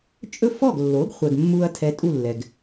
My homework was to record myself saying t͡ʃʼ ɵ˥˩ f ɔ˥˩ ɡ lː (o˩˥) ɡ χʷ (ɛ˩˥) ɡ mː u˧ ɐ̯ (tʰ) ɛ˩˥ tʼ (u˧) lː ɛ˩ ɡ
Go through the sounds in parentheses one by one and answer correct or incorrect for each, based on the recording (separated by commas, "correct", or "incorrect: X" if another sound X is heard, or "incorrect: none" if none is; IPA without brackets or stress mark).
correct, incorrect: ɛ˩, correct, incorrect: u˥˩